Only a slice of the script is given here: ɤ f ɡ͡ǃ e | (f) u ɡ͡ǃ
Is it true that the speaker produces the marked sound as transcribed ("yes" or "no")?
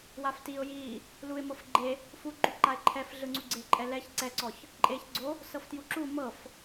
yes